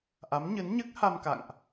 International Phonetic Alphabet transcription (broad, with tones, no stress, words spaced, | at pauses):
ʔa˨˦mɲɨ˨˦nɲɨ˦˥k̚ha˧m ka̰˧˨ŋʔ